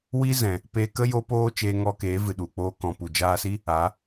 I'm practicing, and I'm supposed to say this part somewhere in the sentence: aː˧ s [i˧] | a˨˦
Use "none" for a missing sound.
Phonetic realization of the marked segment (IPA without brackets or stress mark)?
i˦